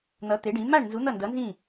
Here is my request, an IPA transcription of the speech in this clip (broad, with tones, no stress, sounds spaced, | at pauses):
n̪ ʌ˨˥ t̪ e˨˥ ɖ ĩ˨˥ m a˥˨ ɳ n z u˨˥ n̪ ʌ˥˨ n d ʌ˨˥ n z ĩ˥˨